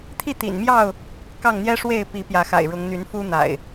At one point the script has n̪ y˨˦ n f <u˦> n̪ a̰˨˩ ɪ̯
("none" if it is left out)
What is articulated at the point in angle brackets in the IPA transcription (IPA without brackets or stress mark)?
u˦